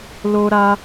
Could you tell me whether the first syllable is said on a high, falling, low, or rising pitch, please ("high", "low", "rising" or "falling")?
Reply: high